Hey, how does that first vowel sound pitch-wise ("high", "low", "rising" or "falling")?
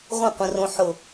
falling